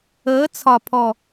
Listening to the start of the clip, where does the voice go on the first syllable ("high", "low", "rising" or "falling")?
rising